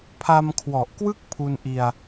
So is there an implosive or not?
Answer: no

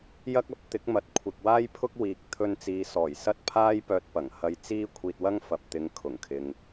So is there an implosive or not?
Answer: no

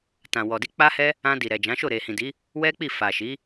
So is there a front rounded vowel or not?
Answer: no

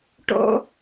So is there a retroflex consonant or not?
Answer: yes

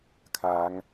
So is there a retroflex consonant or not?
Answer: no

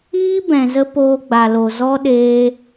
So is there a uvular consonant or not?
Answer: no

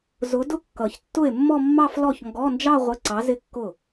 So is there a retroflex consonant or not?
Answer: no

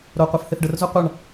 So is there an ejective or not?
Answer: no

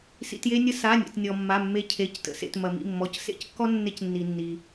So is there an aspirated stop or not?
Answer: yes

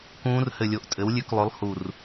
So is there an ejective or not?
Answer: yes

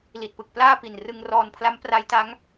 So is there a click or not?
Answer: no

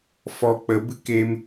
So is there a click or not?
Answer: no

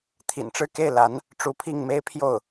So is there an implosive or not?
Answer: no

